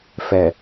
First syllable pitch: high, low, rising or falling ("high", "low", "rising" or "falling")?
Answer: low